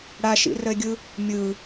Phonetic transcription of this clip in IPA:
ɽ a ʃ ḭ r ə e̯ ɡʲ ɯ | mʲ ɯ

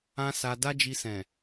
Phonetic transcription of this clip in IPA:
ã˦ s a˧ d a˦ d͡ʒ i˧ s ɛ̃˨

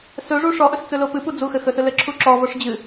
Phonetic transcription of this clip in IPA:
s ɵ ʐ u ʂ ɔ ʔ ɵ s t͡s ɵ l o p ɨ p u d͡z u x ɘ x ɵ s ɵ l ɘ ǁʰ u ǁ ɔ v o ʂ d͡ʑ ɨ

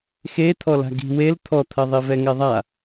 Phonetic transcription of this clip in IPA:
x e t̪ʰ ɔ l a̤ ɡ i̤ w e l t̪ʰ ɔ t̪ʰ ɐ ðˤ i v ɛ ŋ ɛ ðˤ a

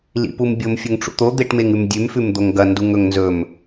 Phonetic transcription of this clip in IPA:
l ḭ p u m bʲ o m fʲ ɵ ŋ ʈ͡ʂ ṵ t̪ o d̪ e ʈ m e ŋ ʉ m dʲ ʉ m f ʉ m d̪ o ŋ ɡ ɐ n d u ŋ ɵ ŋ n z ɵ m

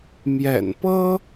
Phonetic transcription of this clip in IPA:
m j ɛ̰˨˩ n p ɤ˥

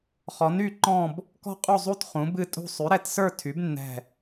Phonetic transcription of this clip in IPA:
χ ɔ˨˥ n y˥˧ ǃ ɔ̃˥˧ b | k ɔ̤˥˧ qʼ u˥˧ zˤ u˥˧ t χ ũ˨˥ b ɨ˥˧ tʼ ṳ˥˧ sˤ y˨˥ ɾ ɛ˨˥ t s ə˞˥˧ tʰ y˨˥ b nː ɛ̤˥˧

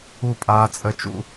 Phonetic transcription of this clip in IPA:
u˦˨ pʼ aː˦ t͡sʼ ə˦ t͡ʃ ṵ˦

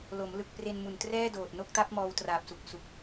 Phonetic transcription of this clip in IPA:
l o˩˦ m l ɯ˨˩ k̚ p r e˧ n m u˨˩ n t r ɛː˥˩ d oː˨˩ t̚ n o˦˥ k̚ t a˦˥ p̚ m ɔː˧ w t r aː˨˩ p̚ s u˨˩ k̚ s u˨˩ k̚

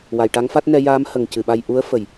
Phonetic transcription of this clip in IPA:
w a˨˩ j ʈ a˧˥ ŋ f a˦˥ t̚ n ɛ˧ j aː˧˥ m h ə˨˩ ŋ c ɨ˨˩ ɓ a˧ j ʔ u˧˥ ə̯ f ə˨˩˨ j

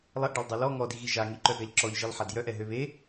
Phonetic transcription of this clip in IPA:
lˠ ɛ ʔ ɖ a lˠ dˤ œ l ɔ ŋ ɔ d i ɣ i ʒ a ŋ i ǃ œ ɡ a ʎ ǁ ɔ ʎ ʒ i lˠ ħ a d j œ ʔ ɛ ɦ ø β e

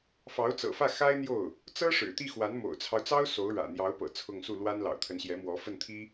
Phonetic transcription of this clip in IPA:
f ɑ˧˥ ʊ̯ t͡s ɤ̰˨˩ f ä˥˩ x a˥ ɪ̯ n̪ j o˥˩ ʊ̯ | t͡s ɤ˥ ʂ ɻ̩˨˩ t̪ i˥˩ x w a˧˥ n m o̰˨˩ ʊ̯ t͡sʰ ɑ˦ ʊ̯ t͡s ɑ˥ ʊ̯ s o˧˥ ʊ̯ ɻ ä̰˨˩ n̪ j ɑ˧˥ ʊ̯ p ɤ̰˨˩ t͡sʰ ʊ˥˧ ŋ s u˥˩ l w a˥ n l ɑ̰˨˩ ʊ̯ t̪ʰ ə˧˥ n ɕ j ɛ˧˥ m w ɔ˧˥ f ə˥˩ n t̪ʰ i˥

